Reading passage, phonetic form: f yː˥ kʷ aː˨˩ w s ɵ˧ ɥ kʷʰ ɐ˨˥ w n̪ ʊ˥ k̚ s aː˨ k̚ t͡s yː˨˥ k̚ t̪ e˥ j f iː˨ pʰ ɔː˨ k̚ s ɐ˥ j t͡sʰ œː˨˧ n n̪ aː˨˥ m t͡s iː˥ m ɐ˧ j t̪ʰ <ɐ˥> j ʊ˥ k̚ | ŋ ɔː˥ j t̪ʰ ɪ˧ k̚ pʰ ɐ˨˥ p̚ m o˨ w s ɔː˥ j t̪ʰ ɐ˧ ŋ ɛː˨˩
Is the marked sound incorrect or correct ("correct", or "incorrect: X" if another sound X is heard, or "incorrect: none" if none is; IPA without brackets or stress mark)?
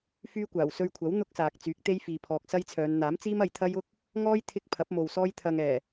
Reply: correct